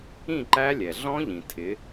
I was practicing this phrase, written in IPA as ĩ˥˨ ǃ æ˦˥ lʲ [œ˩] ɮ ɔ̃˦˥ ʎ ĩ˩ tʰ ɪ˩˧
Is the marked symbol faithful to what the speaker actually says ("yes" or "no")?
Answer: no